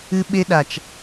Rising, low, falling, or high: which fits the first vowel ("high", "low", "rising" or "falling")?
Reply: high